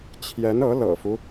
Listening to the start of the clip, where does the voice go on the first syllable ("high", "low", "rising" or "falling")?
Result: rising